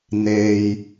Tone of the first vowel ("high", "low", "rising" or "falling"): low